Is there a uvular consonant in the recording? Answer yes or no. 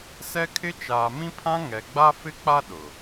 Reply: no